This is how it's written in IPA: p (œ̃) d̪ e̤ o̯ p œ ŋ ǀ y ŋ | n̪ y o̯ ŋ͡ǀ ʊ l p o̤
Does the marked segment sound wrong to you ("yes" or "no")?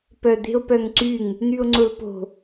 yes